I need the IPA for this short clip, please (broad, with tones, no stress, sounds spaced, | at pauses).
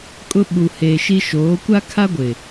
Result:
kʼ ʊ˦ ɓ u˨ h eː˨ ʃ i˦ ʃ oː˨˦ kʷ a˦ kʰ a˦ ɡʷ ɪ˨